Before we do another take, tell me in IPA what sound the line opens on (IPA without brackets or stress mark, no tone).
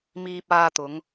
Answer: m